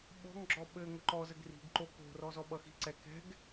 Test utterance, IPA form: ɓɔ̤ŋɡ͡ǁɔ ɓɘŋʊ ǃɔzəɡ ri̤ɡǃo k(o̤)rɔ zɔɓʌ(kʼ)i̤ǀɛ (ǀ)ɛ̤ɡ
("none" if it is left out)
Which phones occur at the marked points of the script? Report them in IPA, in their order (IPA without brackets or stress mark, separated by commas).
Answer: o̤, x, k